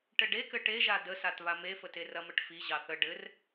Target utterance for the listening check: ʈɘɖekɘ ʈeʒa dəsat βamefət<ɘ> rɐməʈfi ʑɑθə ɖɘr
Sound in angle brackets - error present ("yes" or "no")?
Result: yes